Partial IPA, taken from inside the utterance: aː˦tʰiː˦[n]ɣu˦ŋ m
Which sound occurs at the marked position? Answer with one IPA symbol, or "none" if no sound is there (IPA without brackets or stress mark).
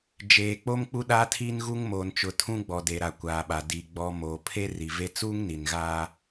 n